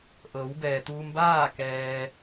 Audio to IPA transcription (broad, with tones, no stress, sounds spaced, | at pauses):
ʔ ɤː˩˧ w b ɛː˩ t̪ uː˧ m b aː˥˨ k ɛː˧